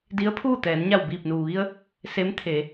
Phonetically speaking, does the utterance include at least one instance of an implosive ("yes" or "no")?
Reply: no